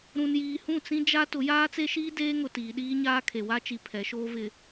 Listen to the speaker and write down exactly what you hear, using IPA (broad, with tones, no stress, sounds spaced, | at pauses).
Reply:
ɾ ũ˨ n j iː˨ h ũ˦˨ t͡s ĩ˦ d͡ʒ a˦ t ʊ˨˦ j aː˦ t͡s e˦ ʃ iː˦ d eː˦ ŋ ʊ˨ t iː˨ ɗ iː˦ ɲ aː˦ kʰ e˨ w a˦ t͡ʃ i˨ pʰ ɛ˨˦ ʃ oː˦ v ɪ˨